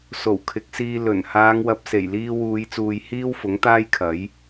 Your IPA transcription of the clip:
s o˨˩ w kʰ ɪ˨˥ k̚ s iː˧ l ɵ˨˩ n h aː˨˧ ŋ w ɐ˨ p̚ s e˨˩ j l iː˧ w uː˨˧ j t͡s uː˨ j h iː˥ w f ʊ˨˥ ŋ t̪ aː˥ j kʰ ɐ˨˥ j

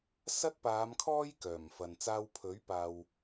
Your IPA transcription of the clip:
s ɐ˥ t̚ p aː˨˧ m kʰ ɔː˥ j k œː˨˩ m f ɐ˨ n t͡s aː˧ w pʰ ɵ˨˥ ɥ p aː˨ w

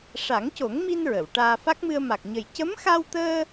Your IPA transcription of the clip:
ʂ a˨˩˦ ŋ c o˨˩˦ ŋ m i˧ n ɹ ə˨˩˨ w ʈ aː˧ f a˦˥ k̚ m ɨ˧ ə̯ m a˨˩ k̚ ɲ ə˨˩ j c ə˧˥ m x a˧ w t̪ əː˧

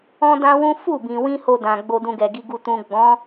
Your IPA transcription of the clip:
ɔ̃˦ d ã˦ w ũ˦ f u˦˨ b ĩ˨ w ĩ˧ h o˧ d ã˨ ɡ͡b o˧ d ũ˧ ɡ ɛ˨ ɡ i˨ ɡ u˨ t ũ˨ ɡ͡b ɔ̃˨˦

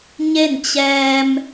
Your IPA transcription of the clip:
ɲ e˥˨ n t͡ɕ ɛː˧ m

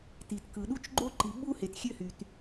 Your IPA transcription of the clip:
t i˨ t k ɯ˨ ɗ u˦ t͡ʃ ɡ͡ǃ o˦ ǃ i˨ ɓ uː˦ h e˨ t xʲ ø˦ h y˨ t

